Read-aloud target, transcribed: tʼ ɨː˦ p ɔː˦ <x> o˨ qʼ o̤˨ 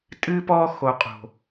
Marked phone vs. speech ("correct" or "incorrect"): correct